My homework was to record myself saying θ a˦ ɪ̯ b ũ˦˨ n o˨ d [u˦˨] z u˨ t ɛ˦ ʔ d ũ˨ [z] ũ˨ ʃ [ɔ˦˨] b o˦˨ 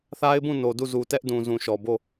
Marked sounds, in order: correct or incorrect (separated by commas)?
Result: correct, correct, incorrect